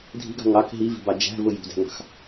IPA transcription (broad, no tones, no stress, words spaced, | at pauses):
dʱi̤ɡɑ̤ ŋɑk ɦivi̤bɑ d͡ʒæ̤vʊ jṳdæ̤ŋɑ̤x